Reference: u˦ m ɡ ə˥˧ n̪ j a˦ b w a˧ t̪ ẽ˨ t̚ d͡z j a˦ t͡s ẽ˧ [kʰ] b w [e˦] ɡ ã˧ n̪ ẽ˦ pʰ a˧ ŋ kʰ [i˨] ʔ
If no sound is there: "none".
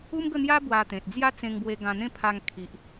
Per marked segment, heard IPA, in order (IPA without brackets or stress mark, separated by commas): ŋ, e˧, i˨